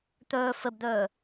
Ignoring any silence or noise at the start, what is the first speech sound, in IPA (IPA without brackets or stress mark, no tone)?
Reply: t̪